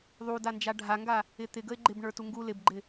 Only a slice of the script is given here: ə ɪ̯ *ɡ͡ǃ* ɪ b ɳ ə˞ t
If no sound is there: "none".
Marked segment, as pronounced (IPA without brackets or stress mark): ɡ͡ǃ